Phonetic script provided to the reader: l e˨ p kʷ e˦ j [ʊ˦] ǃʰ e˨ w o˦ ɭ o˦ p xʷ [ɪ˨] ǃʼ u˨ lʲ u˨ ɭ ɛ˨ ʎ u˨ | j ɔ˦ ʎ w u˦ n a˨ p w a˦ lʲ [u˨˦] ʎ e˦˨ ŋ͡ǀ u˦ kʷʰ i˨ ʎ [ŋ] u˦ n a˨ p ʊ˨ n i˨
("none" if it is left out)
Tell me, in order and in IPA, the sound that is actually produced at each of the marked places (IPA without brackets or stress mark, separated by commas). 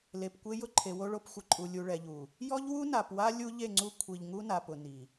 ʊ˦, ɪ˨, u˦, ŋ